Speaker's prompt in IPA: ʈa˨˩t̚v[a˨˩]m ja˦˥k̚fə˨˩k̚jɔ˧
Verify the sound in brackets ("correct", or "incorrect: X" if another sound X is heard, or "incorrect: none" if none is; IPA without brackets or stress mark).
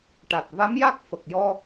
incorrect: a˧˥